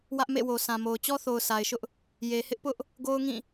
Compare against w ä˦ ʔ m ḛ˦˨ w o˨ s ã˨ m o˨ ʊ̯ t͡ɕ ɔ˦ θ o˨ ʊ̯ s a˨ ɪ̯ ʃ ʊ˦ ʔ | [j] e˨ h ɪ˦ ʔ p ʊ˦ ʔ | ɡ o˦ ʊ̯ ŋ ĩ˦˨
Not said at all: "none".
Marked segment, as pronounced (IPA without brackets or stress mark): j